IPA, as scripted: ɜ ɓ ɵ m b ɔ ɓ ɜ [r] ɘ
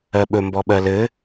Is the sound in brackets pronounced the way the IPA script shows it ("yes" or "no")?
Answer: no